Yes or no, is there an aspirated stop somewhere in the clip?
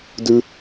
no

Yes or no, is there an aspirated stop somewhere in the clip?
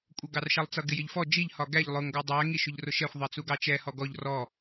no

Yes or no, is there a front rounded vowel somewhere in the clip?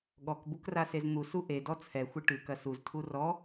no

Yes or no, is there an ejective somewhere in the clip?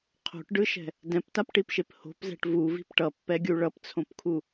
no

